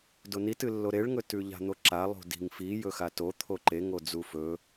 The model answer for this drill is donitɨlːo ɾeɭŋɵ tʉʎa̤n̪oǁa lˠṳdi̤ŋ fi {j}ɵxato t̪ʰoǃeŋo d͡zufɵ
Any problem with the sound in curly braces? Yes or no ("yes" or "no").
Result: no